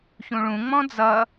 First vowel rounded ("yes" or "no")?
yes